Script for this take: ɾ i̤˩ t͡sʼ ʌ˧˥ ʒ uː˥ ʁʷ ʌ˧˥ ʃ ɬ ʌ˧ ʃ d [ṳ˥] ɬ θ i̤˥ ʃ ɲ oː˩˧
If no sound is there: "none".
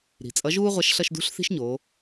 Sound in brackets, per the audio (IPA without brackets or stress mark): ṳ˧˥